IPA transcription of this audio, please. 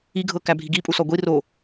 iɡʱɤ kæbʱiɡi pʼusɔɡʷi ro

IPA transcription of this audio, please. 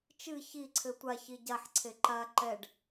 t͡ʃɨ çiǀʰɘ tʷa çiɟaħǀʰe ǃa ǃɛɖ

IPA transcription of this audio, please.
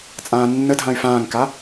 t͡sʼãːnːədʱãy̯ fãːŋka

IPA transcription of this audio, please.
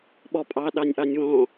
ɓɔpʼɑ ɗɑnʲʔɑnʲwɔ̃

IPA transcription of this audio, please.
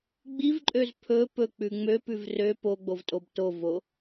ɡ͡bivǃʼøz pʰɵ pɵk͡pʉ ŋ͡møpʉv rø poɡ͡bovtʼob tovo

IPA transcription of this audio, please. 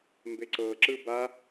mbeǀɤ ǁɯba

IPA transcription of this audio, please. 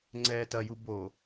ŋ͡ǀɛːtɐju bo

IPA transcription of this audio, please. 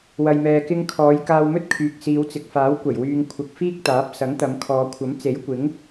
wɐ˨jmɛː˨kɪ˧ŋkʰɔː˨˧j kaː˧wmɵ˥t̚kʰyː˨k̚ siː˨˧wt͡sɪ˨k̚faː˨˥w kʷɐ˨˩jwyː˨ŋ kʷʰɐ˨k̚ fiː˥k̚t̪aː˨˥p̚ sɐ˨˥ŋt̪ɐ˨˧mkʰɔː˨˧ kʷʰɐ˨˥mt͡se˨˥jkʷɪ˨˥ŋ

